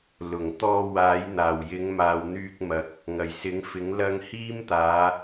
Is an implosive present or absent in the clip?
absent